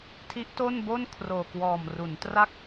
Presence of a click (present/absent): absent